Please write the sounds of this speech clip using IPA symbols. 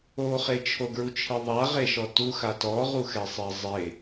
oχe t͡ʃʰoɡɹut͡ʃʰiðˤa ʁeʃɔtu xatɔʁuxɛ sˤizˤe

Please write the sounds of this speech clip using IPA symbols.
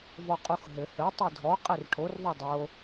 vɔqʼuxɦɘ hɘ tˤɨdʱɔ qʼerʈʰor ðˤudˤo

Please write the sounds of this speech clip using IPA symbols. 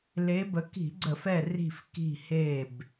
le˨˦bə˨˦ ki̤˧˩˧ɡ͡ǀə˧˩˧fɛ˧˩ ri̤˧˩f ki̤˧˩he˧˩b

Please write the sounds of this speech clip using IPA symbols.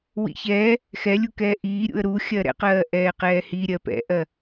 wḭçɛː | xɛlʲukɛː ʔiːɾʲṵə̯ ɾu xʲɜɾɛ̰qɜː ʔɛːqɛːhi ɾʲɜpɛ̰ʔɜ

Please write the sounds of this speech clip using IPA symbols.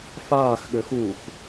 faːxɠøx uːx

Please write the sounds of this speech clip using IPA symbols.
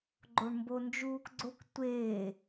ɡ͡ǃoɳmbond͡ʒuːkɡ͡ǀok tʷeː

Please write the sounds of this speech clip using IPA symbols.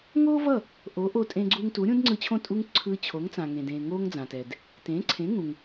ŋoː˥vʌ˥˩ | ʔo˩˥ʔo˧tʼẽ˧ ɡ͡ǀu˧ŋ tu˩˥ɾʲũ˥dŋ͡ǀɯ˧t͡ɕʰõ˥˩ tʼu˥ŋ ǀʰɯ˧ t͡ɕʰo˩˥ŋt͡sã˩ŋẽ˩dẽː˩ ŋoː˥ŋd͡zãː˩tɛ˩d | tẽ˩˥ ǀʰẽ˩˥ŋũ˩ŋ

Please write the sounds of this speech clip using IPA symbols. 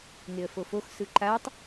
ŋeə̯fofox sɯǃatˤ

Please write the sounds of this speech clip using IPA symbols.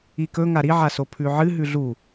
ikɵ ŋaɾi ʕasopʰʉʕɨ ɦʉɮu

